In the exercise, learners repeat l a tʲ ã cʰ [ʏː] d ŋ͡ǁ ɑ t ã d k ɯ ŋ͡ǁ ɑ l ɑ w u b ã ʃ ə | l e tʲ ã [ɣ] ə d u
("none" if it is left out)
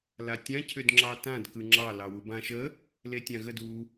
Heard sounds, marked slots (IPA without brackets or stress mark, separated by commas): ʏ, ɣ